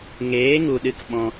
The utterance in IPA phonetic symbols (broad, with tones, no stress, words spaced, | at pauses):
ŋeː˨˦ŋu˨ɗɨ˧k ɓɔ̃˧